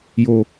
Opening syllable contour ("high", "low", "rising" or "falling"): low